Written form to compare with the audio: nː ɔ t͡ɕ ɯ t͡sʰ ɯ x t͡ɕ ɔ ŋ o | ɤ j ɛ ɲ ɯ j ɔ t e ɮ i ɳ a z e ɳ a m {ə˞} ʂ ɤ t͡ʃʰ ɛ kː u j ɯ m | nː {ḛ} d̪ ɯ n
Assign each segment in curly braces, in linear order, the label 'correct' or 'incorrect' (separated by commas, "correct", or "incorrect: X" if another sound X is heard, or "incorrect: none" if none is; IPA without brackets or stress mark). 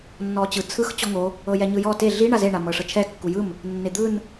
incorrect: ɤ, incorrect: e